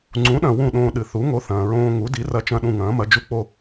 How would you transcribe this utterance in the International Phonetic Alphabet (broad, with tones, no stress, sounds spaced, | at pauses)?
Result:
ŋ͡ǀ ũ˩˥ ɗ ɐ̃˩ w ũ˥˩ ɗ õː˧ ɗ ɨ˩ θ u˩˥ ŋ o˩˥ θ ɐ̃ː˩ ɹ õː˧ ŋ u˩˥ d i˩˥ r ɐ˧ t͡ʃ ɐ̃˥˩ ɗ ũ˥˩ ŋ ɐ̃ː˩˥ m ɐ˩˥ d͡ʒ u˧ k͡p o˥˩